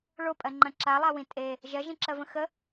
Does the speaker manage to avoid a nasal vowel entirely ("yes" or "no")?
no